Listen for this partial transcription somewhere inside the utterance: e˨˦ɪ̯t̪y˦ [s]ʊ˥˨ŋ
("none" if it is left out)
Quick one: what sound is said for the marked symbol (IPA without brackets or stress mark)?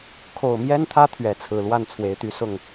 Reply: s